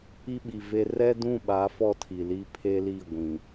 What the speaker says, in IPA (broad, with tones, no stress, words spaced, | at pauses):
i˦ɓi˨ve˦ rɛ˦dũ˦˨ɓa˨˦ fɔ˦tʰi˨ li˦pʰe˦li˦˨ ɡʷĩ˨